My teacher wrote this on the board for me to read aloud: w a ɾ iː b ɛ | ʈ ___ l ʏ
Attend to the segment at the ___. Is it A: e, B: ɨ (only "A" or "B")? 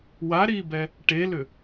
A